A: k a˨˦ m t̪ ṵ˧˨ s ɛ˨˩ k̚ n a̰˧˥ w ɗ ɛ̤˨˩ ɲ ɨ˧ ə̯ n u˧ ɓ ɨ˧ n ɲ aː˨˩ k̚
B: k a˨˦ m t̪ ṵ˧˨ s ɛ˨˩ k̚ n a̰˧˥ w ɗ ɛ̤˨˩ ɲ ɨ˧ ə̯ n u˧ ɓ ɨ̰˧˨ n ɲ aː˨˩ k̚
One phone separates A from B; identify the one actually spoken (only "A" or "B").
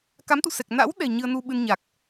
A